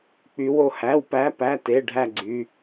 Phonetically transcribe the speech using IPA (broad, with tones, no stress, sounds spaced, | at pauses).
k͡p y˨˦ w o˦˨ h æ˩˧˩ w p æ˨˦ p æ˩˧˩ t e˩˧˩ ɖʱ æ˦˨ ɡ͡ǀ y˩˧˩